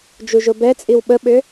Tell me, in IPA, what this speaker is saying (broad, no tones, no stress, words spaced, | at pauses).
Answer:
d͡ʒuʒobɛt͡sʼiw ɓəɓʏ